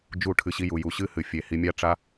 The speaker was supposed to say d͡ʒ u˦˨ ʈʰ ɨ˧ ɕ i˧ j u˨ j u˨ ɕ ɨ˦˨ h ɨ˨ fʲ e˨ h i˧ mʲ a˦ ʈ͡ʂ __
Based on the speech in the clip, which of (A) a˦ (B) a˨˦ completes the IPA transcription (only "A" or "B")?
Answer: A